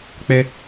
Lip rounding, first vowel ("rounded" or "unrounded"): unrounded